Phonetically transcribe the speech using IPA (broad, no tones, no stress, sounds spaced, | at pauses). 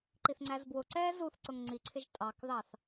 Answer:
ǃ i θ ŋ͡ǀ æ z b w ʊ ǀ ɛː z u θ ǀ ʊ ŋ ŋ͡ǀ i ǀʰ ɪ ʒ tʼ ɑ k ð ɑ θ